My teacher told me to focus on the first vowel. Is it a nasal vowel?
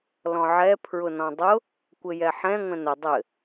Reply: yes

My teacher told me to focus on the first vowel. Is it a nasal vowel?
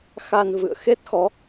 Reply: no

